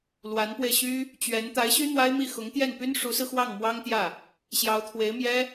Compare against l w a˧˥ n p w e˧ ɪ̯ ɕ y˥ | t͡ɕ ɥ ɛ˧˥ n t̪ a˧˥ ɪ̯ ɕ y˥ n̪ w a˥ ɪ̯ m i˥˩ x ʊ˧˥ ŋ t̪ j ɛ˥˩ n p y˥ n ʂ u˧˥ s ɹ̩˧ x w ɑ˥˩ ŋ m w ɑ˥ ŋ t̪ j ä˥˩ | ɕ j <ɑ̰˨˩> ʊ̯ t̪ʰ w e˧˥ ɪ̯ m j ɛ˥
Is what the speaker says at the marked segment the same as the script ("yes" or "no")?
no